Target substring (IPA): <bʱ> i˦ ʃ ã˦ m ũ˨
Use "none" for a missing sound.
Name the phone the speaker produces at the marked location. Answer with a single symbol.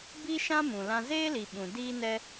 b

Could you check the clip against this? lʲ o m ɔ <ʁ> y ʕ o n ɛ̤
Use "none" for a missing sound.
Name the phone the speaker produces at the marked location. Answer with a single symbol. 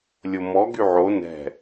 ɡ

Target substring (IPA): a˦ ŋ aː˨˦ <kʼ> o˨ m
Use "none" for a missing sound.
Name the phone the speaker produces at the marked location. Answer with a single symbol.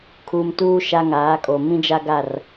kʼ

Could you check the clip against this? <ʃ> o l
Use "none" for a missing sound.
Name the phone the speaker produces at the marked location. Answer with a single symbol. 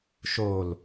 ʃ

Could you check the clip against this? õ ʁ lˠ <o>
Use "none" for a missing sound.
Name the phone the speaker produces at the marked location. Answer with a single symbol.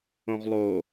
o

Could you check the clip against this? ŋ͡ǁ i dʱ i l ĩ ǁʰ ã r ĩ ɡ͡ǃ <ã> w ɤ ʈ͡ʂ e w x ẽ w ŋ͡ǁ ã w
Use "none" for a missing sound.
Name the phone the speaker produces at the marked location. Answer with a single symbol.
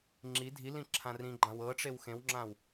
ã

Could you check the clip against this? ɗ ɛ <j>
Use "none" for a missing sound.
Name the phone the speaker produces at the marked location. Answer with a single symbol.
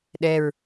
ɹ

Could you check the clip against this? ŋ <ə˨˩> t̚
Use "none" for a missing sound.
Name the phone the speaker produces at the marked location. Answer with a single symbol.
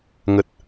ə˨˩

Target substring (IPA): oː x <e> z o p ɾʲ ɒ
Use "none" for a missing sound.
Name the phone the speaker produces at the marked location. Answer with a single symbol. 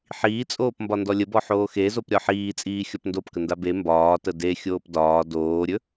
e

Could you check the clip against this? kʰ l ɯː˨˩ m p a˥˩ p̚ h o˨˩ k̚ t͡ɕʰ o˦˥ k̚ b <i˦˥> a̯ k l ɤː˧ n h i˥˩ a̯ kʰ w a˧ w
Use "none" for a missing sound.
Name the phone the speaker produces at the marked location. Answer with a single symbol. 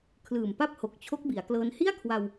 i˩˦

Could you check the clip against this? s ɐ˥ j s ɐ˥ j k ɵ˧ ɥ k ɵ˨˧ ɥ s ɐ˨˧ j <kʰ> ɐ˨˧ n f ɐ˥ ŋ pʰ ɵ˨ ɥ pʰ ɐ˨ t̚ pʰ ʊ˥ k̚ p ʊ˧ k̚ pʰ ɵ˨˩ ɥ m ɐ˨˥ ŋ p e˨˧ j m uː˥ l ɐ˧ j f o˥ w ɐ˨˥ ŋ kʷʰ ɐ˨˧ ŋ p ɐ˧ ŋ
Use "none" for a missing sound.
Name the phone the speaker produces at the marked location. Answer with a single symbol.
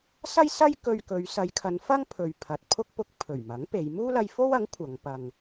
kʰ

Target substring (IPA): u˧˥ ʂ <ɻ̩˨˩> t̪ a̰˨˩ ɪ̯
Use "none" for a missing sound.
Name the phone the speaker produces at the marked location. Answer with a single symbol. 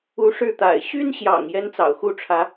ɻ̩˥˩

